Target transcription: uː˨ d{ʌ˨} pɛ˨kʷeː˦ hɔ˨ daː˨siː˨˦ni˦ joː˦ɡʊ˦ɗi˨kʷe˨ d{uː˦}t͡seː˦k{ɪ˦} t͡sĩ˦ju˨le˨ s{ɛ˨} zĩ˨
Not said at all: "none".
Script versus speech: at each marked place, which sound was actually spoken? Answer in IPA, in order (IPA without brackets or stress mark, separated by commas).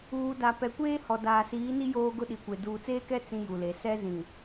a˨, uː˨, ɛ˦, ɛ˦